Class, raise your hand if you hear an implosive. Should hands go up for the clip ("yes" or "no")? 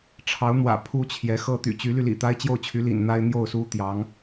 no